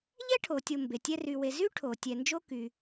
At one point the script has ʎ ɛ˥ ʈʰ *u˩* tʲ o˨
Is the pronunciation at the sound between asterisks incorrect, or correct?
incorrect